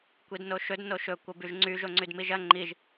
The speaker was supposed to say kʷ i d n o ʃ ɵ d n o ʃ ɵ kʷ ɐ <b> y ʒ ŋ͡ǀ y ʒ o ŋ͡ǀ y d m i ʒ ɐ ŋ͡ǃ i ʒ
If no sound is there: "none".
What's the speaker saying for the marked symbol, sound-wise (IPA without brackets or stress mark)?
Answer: b